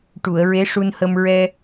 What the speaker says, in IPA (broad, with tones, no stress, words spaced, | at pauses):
ʈu˨˩˨ə̯ɹe˧˥ʂu˧nhə˧m ɹɛ˧